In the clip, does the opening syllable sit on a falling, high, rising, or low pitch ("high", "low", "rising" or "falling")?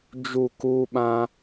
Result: falling